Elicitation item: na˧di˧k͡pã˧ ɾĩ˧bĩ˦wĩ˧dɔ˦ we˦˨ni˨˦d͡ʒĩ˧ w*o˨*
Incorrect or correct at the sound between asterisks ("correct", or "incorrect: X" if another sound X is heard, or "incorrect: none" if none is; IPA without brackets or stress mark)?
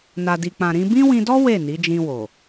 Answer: correct